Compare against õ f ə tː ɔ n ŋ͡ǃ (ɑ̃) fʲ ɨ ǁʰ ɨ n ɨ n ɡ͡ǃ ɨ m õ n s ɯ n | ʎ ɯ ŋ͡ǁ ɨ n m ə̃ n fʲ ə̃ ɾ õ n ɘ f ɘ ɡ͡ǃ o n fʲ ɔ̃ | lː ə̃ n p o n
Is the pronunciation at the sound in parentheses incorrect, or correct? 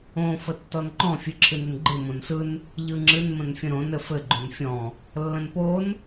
incorrect